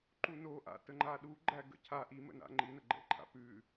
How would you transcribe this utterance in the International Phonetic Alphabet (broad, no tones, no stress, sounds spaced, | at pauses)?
ǃ u n o ʔ a̰ t ə ŋ͡ǃ a ɗ u ɡ͡ǃ æ ɡ ə̰ cʰ a ʔ i m ə̰ n a̰ ŋ͡ǃ i n ə ɡ͡ǃ ɛ̰ ǃʰ a̰ p ʉ